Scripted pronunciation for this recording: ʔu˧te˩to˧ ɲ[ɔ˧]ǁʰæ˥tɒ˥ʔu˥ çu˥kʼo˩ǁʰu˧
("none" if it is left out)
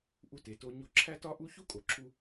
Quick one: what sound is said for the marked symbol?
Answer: o˧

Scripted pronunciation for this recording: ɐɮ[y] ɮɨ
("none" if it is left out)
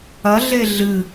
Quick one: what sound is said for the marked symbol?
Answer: e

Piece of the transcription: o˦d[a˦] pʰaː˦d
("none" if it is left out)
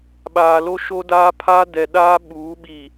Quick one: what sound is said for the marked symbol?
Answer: aː˦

